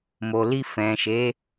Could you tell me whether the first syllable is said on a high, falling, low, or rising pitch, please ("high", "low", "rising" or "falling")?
low